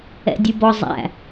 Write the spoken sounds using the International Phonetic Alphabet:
ɛ̰ dʲ ɨ b ɔ zˤ æ̰

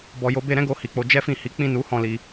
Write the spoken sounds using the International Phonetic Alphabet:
b ɔ˨ j o˨˦ b e˧ ɾ ɛ̃˦ ɡ o˧ h i˨ k͡p o˧ d͡ʒ ɛ˦ f ĩ˦˨ h i˨˦ k͡p ĩ˦˨ n u˨˦ h ɔ̃˦˨ l i˧

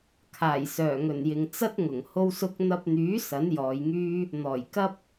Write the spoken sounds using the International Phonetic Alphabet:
kʰ aː˨˩ j s œː˨˩ ŋ ɵ˨˩ n j ɪ˨ ŋ t͡s ɐ˥ t̚ ŋ ʊ˨˩ ŋ h o˥ w s ʊ˥ k̚ n̪ ɐ˧ p̚ n̪ yː˨˥ s ɐ˨˥ n j ɔː˨˧ j ŋ yː˥ | n̪ ɔː˨˩ j k ɐ˥ p̚

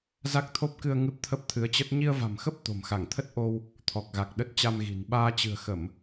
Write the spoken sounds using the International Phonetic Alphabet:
z a˦˥ k̚ t̪ʰ o˦˥ p̚ k ɨ˧ ə̯ ŋ ɨ˦˥ p̚ t̪ʰ ə˦˥ p̚ t̪ʰ ɨ˨˦ ə̯ t͡ɕ ə˦˥ t̚ ɲ i˧ ə̯ v a̤˨˩ m x ə˦˥ p̚ t̪ o̤˨˩ m x a˧˩ ŋ t̪ʰ ə˦˥ t̚ ʔ o˧ w | t̪ʰ ɔ˨˩ k̚ ɣ a˨˩ k̚ ɗ ə˦˥ t̚ t͡ɕ a˧ m ɣ i̤˨˩ n ɓ aː˧ t͡ɕ ɨ̤˨˩ ə̯ x ə˧˩˨ m

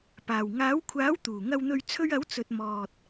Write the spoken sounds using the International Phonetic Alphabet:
p aː˨˩ w ŋ aː˨˥ w kʷʰ aː˨˥ w t̪ uː˨˩ ŋ ɐ˨ w n̪ ɵ˨ ɥ t͡sʰ ɵ˧ ɥ ɐ˨˥ w t͡s ɵ˨ t̚ m ɔː˨ t̚

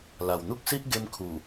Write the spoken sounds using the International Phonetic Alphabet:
l a˨˩ w n̪ u˦ k̚ s i˦ ʔ ɡ e˧ m kʰ u˨˩

